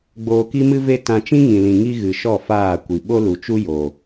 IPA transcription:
ɡ͡boː˧ki˦mɨ˦ve˦ tã˧t͡ʃĩ˦ŋĩ˨lĩ˨ ŋi˦ɣɨ˨ʃɔ˦˨ faː˦˨kʷi˨ ɓo˦lu˨t͡ʃu˦ jo˨

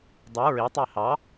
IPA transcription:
dˤy ɹitˤe hɑ

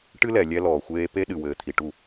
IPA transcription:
ʈɨ˦lɛ˨ lʲɛ˦lɔː˨xʷeː˦ pe˦ɗɨ˨wɘː˨ t̪ʰi˨ʈu˦˨

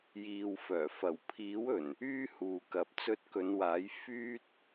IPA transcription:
jiː˨wfœː˨˩ fɐ˨˩wpʰiː˨˥wɵ˨˩n | yː˥huː˨kɐ˨p̚ t͡sɵ˧t̚kɵ˨˧nwaː˨˥j fyː˥t̚

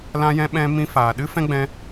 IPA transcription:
lã˧jɛ̃˧ɓɛ̃˧ mĩ˧faː˨ ɗɨ˦fɛ̃˦ɡ͡bɛ̃˧

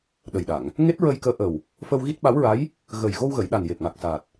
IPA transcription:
ɗə˨˩jɗa˨˩˨ŋ | ŋe˦˥t̚ɹə˧jkəː˧˥ ʔə˨˩w | fə˧wɣi˦˥t̚ɓa˧˥wɹa˧˥j | ɣəː˨˩jɣo˧wɣə˨˩˨jɗa˨˩n je˨˩p̚ŋa˨˩k̚ saː˨˩t̚

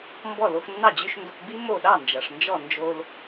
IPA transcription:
mbɔ˥˩ lo˧xnːɑ˥˩ d͡ʑʉ˧ʃ ndo˧kbi˥ mo˥˩ ɗɑ˥˩nd͡ʒʌ˩ʂ nd͡ʒɔ˥˩ nd͡ʒo˧l

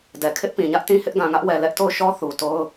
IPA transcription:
dɛ˨kʰɪ˦ʔpĩ˨ɲä˦ʔ tĩ˦hɪ˦ʔɡã˨ŋä˦ʔ wɛ˨ lɛ˦ʔto˦˨ʊ̯ʃɔ˦ θu˨to˦ʊ̯

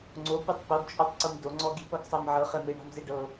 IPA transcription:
ŋ͡ǀopɯtˤ poɡt͡ʃʼɔtˤǀum doŋ͡ǀɔɡi̤pɤɡ sˤamʕɤχɛ meɳa̤mzeɖɤ

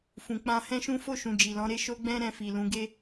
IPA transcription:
fũ˨k͡pã˧ hɛ̃˦ʃũ˦ fo˦˨ʃũ˨ d͡ʒi˨lɔ̃˨˦ɾe˦ ʃo˦ ɡ͡bɛ̃˦ ɾɛ̃˧fi˨lũ˨˦ ɡe˦

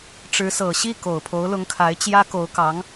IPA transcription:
ʈ͡ʂɻ̩˧˥sɤ˨˩ ɕi˥˩ ko˨˩ʊ̯pʰo˧˥ʊ̯lʊ˧˥ŋkʰa˧˥ɪ̯ t͡ɕjä˥ko˧˥ʊ̯kɑ˧˥ŋ

